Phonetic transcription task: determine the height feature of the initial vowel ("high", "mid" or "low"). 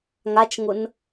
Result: low